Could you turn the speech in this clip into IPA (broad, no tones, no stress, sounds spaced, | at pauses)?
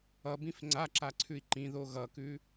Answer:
ʌ b ĩ f ŋ͡ǀ a ǁ a ǀʰ ʉ i̯ ǃ ĩ ð o ɣ ʌ k ʉ